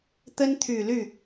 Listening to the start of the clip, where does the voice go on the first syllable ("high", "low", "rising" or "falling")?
high